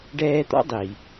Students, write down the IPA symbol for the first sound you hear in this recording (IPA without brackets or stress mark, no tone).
ɖ